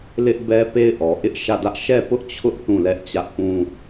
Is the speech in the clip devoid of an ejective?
yes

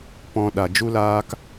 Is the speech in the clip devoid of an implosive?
no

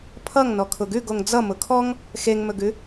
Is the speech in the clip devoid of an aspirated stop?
no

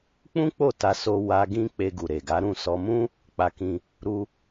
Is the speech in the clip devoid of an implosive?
yes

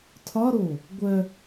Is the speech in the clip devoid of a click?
yes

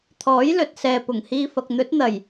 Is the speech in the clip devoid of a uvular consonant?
yes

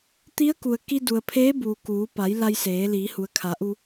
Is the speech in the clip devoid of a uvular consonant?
yes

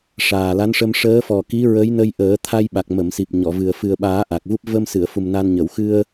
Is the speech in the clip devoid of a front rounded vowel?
yes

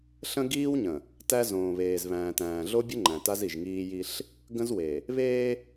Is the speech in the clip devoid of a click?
no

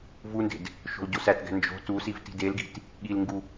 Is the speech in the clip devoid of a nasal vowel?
yes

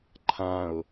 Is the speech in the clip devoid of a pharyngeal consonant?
yes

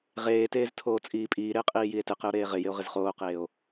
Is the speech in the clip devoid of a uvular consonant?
no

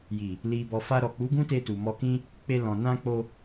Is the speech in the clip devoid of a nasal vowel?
no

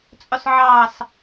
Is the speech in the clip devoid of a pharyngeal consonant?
no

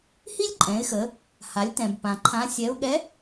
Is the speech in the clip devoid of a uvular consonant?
yes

